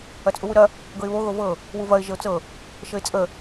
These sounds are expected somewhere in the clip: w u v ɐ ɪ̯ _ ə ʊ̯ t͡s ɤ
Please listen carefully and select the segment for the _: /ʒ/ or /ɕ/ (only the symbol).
ʒ